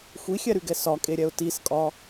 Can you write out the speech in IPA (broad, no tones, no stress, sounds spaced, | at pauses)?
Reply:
xʷ i xʲ ɛ ɾ y ɡ ɛ s ɒ kʼ e ɾʲ ɛ ʊ̯ t i s kʼ ɒ